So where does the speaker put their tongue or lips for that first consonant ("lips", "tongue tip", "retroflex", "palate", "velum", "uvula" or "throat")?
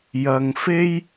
palate